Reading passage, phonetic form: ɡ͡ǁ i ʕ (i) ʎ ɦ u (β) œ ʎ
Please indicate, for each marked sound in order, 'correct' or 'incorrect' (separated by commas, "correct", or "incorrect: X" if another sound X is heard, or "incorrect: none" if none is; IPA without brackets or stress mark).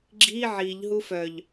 correct, incorrect: f